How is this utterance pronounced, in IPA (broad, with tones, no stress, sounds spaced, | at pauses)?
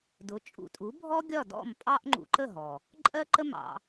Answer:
d ʊ˩˥ t͡ʃʼ ṵ˧ tʼ u˩˥ bʱ ɔ˥ ɡʲ ɒ˥˩ d ɔ̰˥˩ m pʼ ɑ˥ ʔ ŋ͡ǃ ṵ˧ ǃ ə˥˩ ɦ ɔ˩ | ǃʼ ɜ˥ ǃ ə˥ m ɑ̰˧